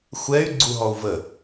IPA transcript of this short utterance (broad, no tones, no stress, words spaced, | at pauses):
xʷɛy̯ ɡ͡ǀuɦɔu̯və